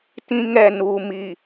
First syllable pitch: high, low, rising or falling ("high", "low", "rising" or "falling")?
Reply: high